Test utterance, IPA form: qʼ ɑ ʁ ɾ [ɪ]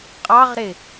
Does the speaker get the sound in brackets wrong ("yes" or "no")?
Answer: no